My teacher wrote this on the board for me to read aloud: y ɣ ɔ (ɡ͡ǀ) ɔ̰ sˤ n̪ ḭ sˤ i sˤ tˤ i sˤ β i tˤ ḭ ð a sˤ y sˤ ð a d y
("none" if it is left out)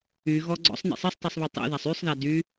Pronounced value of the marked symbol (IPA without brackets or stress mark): ɡ͡ǀ